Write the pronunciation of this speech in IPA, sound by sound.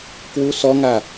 k w u s ɔ ŋ a

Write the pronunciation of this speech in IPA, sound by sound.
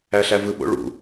æ ɬ æ v ɯ ɓ o̰ ɭ ṵ

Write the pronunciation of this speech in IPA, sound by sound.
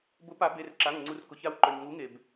b ʊ˨˩˦ p a˨˩˦ b e˩˧˩ r ǁ a˩˧˩ ŋ ŋ͡ǀ u˩ r k ʊ˩ ç a˩˥ w ǃ œ˩ ɲ ŋ u˩˥ ŋ e˩ b

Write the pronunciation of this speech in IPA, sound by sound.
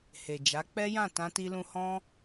h e˨ d͡ʒ a˨˦ k͡p ɛ˦ j ã˦˨ t ã˧ t i˧ l ũ˧ h ɔ̃˦

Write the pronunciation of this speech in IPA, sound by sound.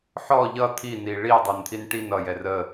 ħ ɔ ʎ ʌ t̪ʰ i n i ɭ i ə̯ dˤ ə˞ n t̪ʰ i n ʈ i n ʌ j ɛ r ə

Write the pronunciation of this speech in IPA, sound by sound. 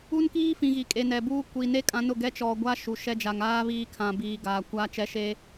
u˦ n k iː˦ f ĩ˨ ɣ i˨ kʼ e˨ n ɛ˨ b uː˦ kʷ i˨ n e˦ kʼ ã˦ n ʊ˦˨ ɡ ɛ˦ t͡ʃ ɔ˨ ɡʷ a˦ ʃ u˨ ʃ ɛ˦ d͡ʒ a˨ ŋ aː˦ β iː˦ kʰ ã˨ b iː˨ ɡ aː˨ kʷ aː˦ t͡ʃ ɛ˦ ʃ eː˦

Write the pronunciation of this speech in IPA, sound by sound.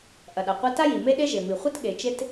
ʔ ɐ˩ ɗ a˩ qʷ a˥ t a˥ j i˩ m e˥ ɗ e˥ ʒ e˩ m i˩ χʷ ɨ˥ t ɠ e˩ t͡ʃ e˥ t

